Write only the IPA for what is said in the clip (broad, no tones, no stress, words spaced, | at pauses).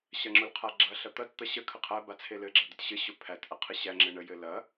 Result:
ɕɐŋ͡ǁʊlqʰaɡ͡ǁɐ ɬɐt̪ɐt t̪ɐɕə kʰəqʰæ bat͡sʰelɘ ɡ͡ǁɐd̪ətɕɘ ɕʊpʰæt ʔɐqʰɘɕæ ŋ͡ǁɘɳə jɘlɐ